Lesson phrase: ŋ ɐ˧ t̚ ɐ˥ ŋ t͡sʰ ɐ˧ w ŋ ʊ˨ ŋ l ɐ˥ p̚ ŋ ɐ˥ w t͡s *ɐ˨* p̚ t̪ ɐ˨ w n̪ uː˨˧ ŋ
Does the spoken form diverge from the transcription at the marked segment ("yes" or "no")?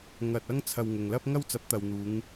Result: yes